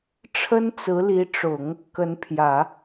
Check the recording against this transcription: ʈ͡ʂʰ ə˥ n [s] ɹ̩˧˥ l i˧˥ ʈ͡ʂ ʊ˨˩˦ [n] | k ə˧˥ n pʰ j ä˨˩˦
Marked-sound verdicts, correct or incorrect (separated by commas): incorrect, incorrect